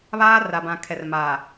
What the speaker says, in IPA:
βaː˦ ra˨bã˨ kʰɛ˨rmaː˨

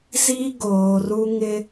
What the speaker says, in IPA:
zi˦ ɡoː˨ru˦ ŋɪ˦

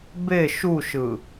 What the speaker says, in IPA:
be ʃuʃɯ

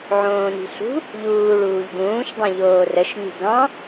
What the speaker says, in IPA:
ʕõːni̤ɬṳ | ʎuː ɭuːʎɡũːʃ dˤõʎoːrəʃ lʲṳɡɑ̃

